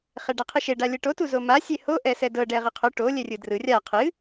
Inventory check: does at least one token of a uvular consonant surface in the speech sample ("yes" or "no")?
yes